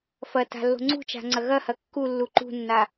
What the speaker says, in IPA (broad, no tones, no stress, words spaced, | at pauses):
fɐ ta̤lːo̤ŋ͡ǀṳt͡ʃa̤ ŋ͡ǀɐɣɐhɐ kːu lːuǃṳnːa